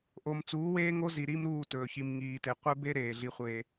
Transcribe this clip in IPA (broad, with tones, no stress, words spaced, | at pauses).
ʔo˨m t͡suː˨˦weː˦ŋo˦zi˨ ɾi˦mɾuː˦˨ tɵː˨çi˨m ŋiː˨te˨qʷe˦ be˦ ɾeː˨ɮi˦χʷeː˦